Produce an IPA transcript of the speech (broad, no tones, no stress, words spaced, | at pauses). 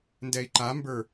ndɛi̯ǃambə˞